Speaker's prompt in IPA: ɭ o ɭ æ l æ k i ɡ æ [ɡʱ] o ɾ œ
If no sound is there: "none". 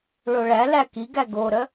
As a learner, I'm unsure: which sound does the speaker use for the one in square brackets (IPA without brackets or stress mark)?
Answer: ɡ